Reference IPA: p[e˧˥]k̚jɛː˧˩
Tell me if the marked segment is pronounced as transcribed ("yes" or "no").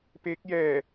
yes